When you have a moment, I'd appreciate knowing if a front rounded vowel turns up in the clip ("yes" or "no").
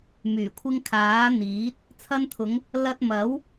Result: yes